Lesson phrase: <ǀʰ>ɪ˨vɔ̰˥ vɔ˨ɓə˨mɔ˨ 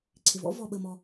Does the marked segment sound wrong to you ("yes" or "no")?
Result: no